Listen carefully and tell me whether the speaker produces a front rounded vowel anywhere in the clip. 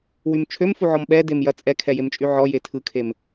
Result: yes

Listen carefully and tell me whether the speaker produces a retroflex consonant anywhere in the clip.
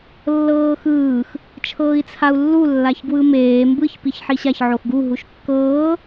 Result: no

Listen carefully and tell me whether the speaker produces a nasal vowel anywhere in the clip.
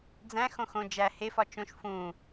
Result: yes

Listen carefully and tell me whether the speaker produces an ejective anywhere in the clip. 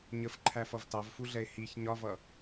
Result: no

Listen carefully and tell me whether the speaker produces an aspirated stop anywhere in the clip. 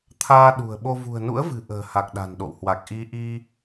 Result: yes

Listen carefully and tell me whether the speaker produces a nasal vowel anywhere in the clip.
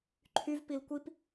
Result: no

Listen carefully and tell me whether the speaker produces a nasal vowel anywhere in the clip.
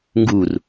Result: no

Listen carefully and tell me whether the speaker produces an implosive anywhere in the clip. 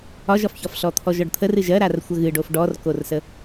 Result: no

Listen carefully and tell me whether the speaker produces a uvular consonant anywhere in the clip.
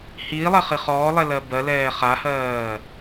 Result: yes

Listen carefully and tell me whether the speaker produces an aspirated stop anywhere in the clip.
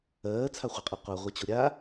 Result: yes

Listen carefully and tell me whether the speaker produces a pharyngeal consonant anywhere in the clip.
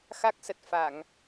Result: no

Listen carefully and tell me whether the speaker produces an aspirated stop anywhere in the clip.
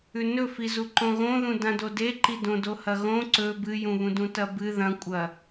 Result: no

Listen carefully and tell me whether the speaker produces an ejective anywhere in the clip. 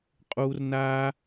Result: yes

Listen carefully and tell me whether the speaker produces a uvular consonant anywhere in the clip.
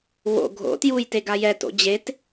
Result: no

